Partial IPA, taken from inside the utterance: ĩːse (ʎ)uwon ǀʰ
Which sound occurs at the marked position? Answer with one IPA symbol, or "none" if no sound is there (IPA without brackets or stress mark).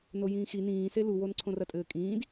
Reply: l